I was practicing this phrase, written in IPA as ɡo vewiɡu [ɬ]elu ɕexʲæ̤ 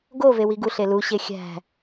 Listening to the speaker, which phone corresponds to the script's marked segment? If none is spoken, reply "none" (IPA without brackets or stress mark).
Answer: ɬ